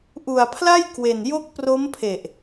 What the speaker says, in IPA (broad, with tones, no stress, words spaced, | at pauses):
ʔu˨˩a̯pʰla˥˩jkwe˨˩n jo˦˥k̚pro˦˥mpʰe˨˩ʔ